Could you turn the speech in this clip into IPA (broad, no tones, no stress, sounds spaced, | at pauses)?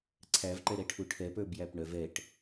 ǀʰ æ v ǃ ɛ ɾ ɛ ʈʰ u ʈʰ ɛ p ə˞ b j æ p ɳ œ v ɛ ʈ